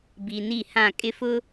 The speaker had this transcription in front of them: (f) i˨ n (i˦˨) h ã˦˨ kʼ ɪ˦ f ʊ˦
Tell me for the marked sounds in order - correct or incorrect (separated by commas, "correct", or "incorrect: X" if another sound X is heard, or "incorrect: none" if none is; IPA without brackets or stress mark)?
incorrect: b, correct